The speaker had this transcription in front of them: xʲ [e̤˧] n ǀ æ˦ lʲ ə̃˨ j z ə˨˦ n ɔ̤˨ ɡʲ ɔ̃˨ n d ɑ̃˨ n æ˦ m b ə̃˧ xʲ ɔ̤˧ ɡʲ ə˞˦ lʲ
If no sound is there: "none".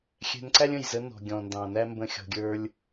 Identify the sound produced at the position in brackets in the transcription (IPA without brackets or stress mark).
ɛ̤˧